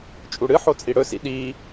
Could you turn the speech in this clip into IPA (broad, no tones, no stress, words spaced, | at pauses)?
t͡ʃʼuɽɨ ħot͡sʼiɽɵsḭ ɗi